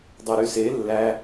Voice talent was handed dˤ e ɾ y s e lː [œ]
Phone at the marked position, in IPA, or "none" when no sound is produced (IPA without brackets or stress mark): æ